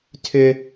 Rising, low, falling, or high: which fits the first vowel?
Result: high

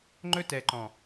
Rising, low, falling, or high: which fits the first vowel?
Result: high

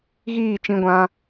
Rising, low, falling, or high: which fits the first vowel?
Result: falling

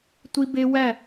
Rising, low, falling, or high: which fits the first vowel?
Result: high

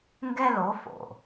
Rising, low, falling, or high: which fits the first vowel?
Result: high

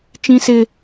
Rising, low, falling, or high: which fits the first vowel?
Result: high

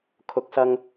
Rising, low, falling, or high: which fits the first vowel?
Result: low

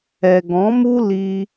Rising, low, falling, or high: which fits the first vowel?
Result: low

